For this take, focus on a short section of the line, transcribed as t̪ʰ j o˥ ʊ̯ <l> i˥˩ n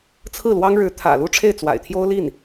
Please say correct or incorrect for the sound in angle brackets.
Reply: correct